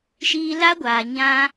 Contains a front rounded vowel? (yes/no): no